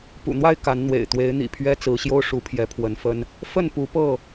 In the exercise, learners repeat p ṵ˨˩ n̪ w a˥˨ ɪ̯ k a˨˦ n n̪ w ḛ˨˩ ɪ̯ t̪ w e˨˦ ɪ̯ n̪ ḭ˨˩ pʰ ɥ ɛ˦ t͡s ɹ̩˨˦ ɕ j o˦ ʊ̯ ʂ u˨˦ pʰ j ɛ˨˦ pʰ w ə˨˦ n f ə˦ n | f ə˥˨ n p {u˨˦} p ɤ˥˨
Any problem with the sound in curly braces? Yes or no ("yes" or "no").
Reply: no